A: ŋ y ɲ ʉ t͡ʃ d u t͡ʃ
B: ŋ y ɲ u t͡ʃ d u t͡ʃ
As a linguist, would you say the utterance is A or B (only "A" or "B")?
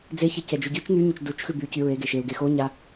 A